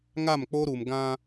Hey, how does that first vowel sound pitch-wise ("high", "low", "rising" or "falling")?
falling